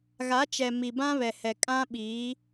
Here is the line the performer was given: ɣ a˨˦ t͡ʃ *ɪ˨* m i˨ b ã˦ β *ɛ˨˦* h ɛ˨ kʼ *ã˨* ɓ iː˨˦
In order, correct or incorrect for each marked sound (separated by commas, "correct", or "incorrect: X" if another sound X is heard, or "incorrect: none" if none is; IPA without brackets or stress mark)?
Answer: incorrect: ɛ˨, incorrect: ɛ˨, incorrect: ã˦